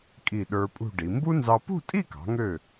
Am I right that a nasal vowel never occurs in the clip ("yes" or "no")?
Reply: yes